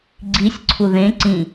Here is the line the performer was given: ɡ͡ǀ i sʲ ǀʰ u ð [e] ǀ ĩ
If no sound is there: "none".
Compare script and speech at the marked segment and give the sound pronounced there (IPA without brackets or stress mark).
ẽ